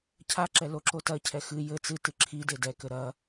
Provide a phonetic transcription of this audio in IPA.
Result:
cʰ a ǁ ɛ l o ǁ o t ɐ cʰ ɛ x ɨ j ɘ t͡s ɨ t ɨ ǁʰ i d e d ɛ k ɘ ɾ ɐ

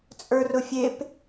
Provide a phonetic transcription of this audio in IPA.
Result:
t͡sʼ ə˞ r ʊ fʲ e p

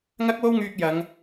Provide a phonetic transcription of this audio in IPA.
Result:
ŋ ɐ˥ k̚ w o˥ w ŋ yː˧ k̚ j ɐ˨˧ ŋ

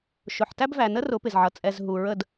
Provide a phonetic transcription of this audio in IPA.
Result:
ʃ ʊ˨ ħ t æ˦ b v æ˨ n ə˦ r ʊ˨˦ p ɪ˨ z ʕ ʌ˨ t͡sʼ ɛ˨ z ɦ u˨ ɹ ə˦˨ d

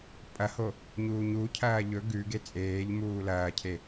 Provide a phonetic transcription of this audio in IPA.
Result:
pʼ ɐ h o | ɲ uː ɲ u cʰ ɐː ʎ ɵ ɡ ʉ ɡ e t͡sʼ eː ʎ m uː l ɐː cʰ e

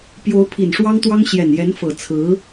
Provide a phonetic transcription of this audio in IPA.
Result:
p j o˧˥ ʊ̯ pʰ i˨˩ n ʂ w ɑ˥ ŋ t̪ w ɑ˥ ŋ ɕ j ɛ˨˩ n j ɛ˧˥ n f ɤ˨˩ t͡sʰ ɹ̩˧˥

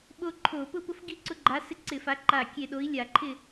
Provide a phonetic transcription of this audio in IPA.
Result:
ɓ o˦ ǃʰ o˧˩˧ p ʊ˦ p ʊ˦ f ɡ i˥˨ ǀ ʊ˦ ɡ͡ǃ a˨˥ s ɪ˦ ǀ ɪ˧˩˧ f a˨˥ ǃ a˧˩ kʲ e˧˩ ɗ o˨˥ i̯ lʲ a˧˩˧ ǃʰ ɪ˥˨

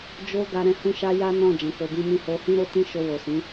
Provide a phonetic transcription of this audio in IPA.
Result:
d͡ʒ o˦ ɡ a˧ ɾ ɛ̃˧ h ũ˧ ʃ a˧ j a˦ n ɔ̃˦˨ d͡ʒ ɛ̃˨˦ k o˧ b ĩ˦ m ĩ˦ h o˧ h ĩ˦ ɾ o˦ t ĩ˦ ʃ o˧ w o˨ s ĩ˨˦

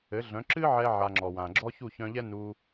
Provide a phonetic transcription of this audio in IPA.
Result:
ɘ˩˥ ɮ œ̃˩˥ ǁ ɨ˥ ʕ ɛ˧ ʕ a˧ ŋ͡ǁ ɔ˩ w ã˩ ɡ͡ǁ ɔ˥ ç u˥˩ ç œ̃˧ ʎ ɛ˥ n u˧

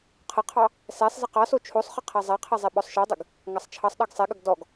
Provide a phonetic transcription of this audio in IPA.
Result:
qʰ ə qʰ ɑ | s ɛ sˤ z ɘ q ɑ s o t͡ʃʰ o sˤ χ ɘ qʰ æ zˤ æ qʰ ɛ zˤ ɛ ɓ ɔ sˤ ʃ ɔ dˤ ɘ ɡ | ŋ ɑ sˤ t͡ʃʰ ɑ sˤ ɗ ɑ ɡ sˤ ɛ ɠ ə ɡ d ɔ ɡ

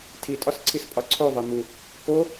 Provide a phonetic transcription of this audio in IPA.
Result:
tʰ i tʼ ɒ s ǀʰ i s pʼ ɒ ǀʰ o ðˤ e m u | k o

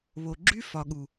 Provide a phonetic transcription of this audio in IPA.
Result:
β o˨ ɡ͡ǁ y˦ f ɒ˨ ɠ u˨

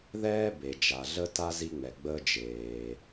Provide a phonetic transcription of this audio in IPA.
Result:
ð ɛː˥ b e˩ d͡ʒ a˩ ɮ ə˥ t a˥ z i˥ ŋ͡m ɛ˩ ɡ͡b əː˥ d͡ʒ eː˩

